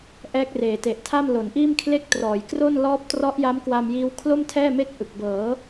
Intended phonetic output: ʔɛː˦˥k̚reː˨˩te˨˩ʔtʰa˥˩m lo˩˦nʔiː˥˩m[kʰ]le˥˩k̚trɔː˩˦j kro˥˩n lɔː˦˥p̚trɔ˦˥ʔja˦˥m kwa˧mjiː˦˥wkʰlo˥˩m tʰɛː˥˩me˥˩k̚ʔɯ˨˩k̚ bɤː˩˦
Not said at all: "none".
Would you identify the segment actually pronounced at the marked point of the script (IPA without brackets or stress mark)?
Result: kʰ